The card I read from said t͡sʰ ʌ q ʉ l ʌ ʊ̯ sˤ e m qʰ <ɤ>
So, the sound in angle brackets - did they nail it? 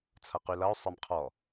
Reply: no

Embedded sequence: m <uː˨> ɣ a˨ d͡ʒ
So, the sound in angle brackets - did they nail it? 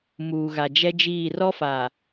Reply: yes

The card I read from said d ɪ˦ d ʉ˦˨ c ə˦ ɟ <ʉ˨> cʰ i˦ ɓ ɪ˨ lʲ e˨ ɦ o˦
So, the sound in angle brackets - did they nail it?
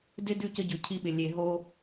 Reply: yes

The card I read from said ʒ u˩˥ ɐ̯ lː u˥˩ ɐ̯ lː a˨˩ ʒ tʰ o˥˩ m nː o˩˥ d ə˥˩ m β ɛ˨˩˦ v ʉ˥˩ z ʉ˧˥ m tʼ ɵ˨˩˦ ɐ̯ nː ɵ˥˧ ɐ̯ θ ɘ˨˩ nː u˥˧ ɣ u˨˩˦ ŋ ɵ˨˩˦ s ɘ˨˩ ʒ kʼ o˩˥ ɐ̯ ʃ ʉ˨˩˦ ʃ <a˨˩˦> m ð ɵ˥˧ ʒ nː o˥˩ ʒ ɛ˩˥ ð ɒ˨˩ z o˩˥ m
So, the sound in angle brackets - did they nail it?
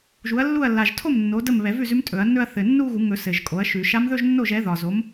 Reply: no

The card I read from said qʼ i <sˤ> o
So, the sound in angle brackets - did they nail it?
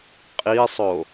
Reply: yes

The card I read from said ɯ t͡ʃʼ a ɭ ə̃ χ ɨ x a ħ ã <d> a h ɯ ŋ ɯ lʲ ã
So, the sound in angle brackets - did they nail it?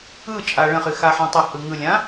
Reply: no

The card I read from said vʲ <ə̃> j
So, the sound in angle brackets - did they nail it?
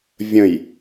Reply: yes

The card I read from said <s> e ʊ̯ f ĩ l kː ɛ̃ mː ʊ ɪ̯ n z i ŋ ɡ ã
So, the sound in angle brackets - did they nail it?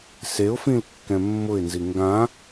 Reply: yes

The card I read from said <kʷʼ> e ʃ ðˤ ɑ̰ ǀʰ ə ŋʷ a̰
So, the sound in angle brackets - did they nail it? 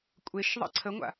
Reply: yes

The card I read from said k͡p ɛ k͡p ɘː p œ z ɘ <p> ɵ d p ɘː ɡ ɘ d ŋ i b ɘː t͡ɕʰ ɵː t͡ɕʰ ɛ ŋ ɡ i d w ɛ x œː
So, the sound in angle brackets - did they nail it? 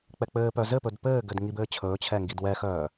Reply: yes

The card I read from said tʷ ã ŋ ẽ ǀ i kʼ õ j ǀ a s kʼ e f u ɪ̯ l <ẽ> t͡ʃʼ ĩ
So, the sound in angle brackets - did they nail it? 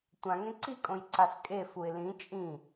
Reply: no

